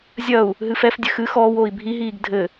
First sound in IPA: zʲ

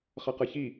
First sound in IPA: χ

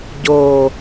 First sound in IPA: ɟ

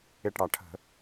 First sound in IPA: ɪ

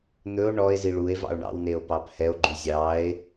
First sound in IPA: n̪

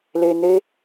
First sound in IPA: l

